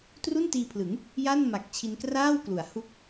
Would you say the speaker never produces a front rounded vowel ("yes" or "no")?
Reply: yes